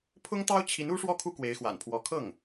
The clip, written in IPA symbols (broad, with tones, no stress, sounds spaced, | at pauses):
pʰ ʊ˥ ŋ t̪ ɑ˥ ʊ̯ t͡ɕʰ i˧˥ n u˥ ʂ w ɔ˥˩ kʰ u˥ k w e˧˥ ɪ̯ x w a̰˨˩ n pʰ w ɔ˧˥ kʰ ɤ˥˩ ŋ